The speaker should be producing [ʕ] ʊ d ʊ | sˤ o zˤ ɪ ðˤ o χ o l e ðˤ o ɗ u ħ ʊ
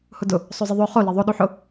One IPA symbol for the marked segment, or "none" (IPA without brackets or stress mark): h